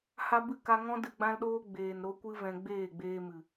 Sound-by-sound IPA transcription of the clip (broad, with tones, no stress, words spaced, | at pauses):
ha˦ bɨ˦˨ka˧ŋɔ̃˦ dɨ˧ɡ͡bã˦lɗoː˦ ɡ͡beː˨n ɾo˦kʷɨ˦ vɛ̃˧ɡ͡beː˦˨ɡ͡beː˧mɨ˨